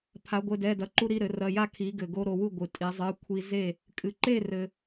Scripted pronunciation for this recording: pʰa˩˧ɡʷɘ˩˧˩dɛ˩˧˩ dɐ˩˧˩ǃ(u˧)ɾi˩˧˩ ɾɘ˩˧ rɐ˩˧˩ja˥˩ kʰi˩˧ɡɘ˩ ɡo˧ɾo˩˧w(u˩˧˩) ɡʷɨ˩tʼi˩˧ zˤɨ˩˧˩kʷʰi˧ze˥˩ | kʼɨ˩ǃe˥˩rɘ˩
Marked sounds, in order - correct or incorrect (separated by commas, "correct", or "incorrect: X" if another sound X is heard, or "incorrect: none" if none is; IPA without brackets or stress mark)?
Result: correct, incorrect: u˥˩